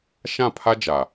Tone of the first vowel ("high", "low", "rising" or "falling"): falling